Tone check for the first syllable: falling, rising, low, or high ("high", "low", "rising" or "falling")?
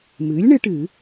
rising